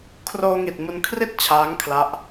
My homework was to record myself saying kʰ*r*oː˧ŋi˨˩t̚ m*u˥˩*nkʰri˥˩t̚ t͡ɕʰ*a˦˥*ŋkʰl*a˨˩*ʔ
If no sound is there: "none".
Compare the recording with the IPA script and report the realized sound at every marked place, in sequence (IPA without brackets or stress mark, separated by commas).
r, u˧, aː˦˥, a˦˥